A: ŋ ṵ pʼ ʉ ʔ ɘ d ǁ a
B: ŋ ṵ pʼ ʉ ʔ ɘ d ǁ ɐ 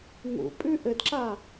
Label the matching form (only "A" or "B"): A